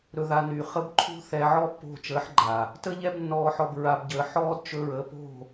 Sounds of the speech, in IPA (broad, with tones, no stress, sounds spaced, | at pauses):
ɾ ɵ˧ ð a˧ n yː˨ χ ə˧ b ǃʰ ṳ˦ θ ɛ˧ ʕ ɔ˦ pː o̤˦˨ t͡ʃ əː˨˦ ħ ɡ͡ǃ a˨ | t ə˦ ʎ ɛ˦ b nː ɔː˧ ħ ɔ˧ b ɹ a˧ b ɟ əː˧ ħ ɔː˦ d t͡ʃ ɵ˧ ɹ ə˨˦ p o̤˦˨